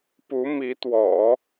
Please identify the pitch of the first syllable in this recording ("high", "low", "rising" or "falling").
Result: rising